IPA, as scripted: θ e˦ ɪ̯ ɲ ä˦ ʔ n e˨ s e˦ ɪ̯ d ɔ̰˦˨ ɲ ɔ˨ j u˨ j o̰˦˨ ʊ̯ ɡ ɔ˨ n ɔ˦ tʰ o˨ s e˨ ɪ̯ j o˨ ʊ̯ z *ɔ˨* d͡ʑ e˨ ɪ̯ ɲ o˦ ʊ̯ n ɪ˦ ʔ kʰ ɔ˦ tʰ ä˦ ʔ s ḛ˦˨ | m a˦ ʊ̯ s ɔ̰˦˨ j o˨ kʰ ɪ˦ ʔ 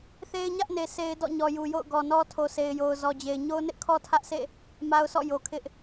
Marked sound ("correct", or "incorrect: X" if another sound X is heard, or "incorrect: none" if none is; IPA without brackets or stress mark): correct